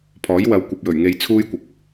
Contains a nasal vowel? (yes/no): no